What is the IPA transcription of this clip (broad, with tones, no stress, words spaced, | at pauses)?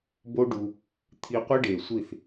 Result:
bo˦ɖu˧ | t̪ʰi˧ qʷi˦ɖe˨sʷi˦˨θ